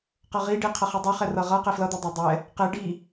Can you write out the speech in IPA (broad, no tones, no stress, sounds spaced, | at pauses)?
q ʌ ʁ i ɖ i qʰ ʌ χ i dˤ e χ ɛ r ʌ ʁ ʌ q e f l ʌ d̪ ɛ dˤ a dˤ ɛ | q e ɖ i